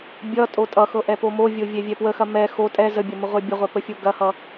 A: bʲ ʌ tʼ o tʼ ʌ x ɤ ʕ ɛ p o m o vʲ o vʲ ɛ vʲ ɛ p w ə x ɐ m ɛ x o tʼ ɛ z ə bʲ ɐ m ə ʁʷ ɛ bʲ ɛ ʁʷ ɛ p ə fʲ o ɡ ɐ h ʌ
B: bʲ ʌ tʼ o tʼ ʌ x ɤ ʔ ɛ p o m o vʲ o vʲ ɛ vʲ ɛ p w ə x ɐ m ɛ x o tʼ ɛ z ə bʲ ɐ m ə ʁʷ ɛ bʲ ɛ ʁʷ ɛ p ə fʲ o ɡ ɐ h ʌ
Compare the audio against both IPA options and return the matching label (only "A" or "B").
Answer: B